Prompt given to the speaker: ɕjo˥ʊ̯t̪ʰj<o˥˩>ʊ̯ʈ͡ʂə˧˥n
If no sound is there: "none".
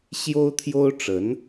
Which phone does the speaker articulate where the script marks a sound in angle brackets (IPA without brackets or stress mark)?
o˥